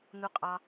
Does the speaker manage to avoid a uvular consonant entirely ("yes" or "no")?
no